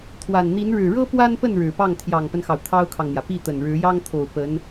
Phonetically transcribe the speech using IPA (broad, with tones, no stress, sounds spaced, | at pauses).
t̪ʰ w a˨˩ n n̪ i˧˥ n ɻ ɻ̩˨˩ ɻ ɤ˥ p w a˥ n p ə˥˩ n ɻ ɻ̩˨˩ p ɑ˥˩ ŋ t̪ʰ j ɑ˨˩ ŋ p ə˦ n x ɑ˩ ʊ̯ t̪ʰ ɑ˥ ʊ̯ kʰ ɑ˨ ŋ n̪ j ä˩ p i˥˩ t̪ ə˨˩ n ɻ ɻ̩˧˥ j ɑ˥ ŋ t̪ʰ o˨˩ ʊ̯ p ə˧˥ n